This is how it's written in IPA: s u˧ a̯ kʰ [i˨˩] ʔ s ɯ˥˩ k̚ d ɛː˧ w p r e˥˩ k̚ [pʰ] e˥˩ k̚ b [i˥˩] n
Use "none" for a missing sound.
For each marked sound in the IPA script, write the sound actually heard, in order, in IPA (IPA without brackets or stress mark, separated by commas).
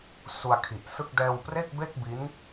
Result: i˨˩, b, i˦˥